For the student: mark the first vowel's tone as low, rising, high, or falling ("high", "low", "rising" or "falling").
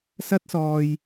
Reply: high